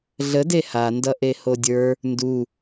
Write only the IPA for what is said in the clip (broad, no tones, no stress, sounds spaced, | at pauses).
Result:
ɮ ə d e h a n d ʌ ʔ e h o dʲ ə˞ | n d u